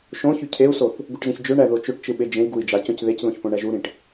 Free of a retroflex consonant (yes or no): no